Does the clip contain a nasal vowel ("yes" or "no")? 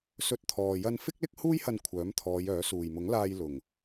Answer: no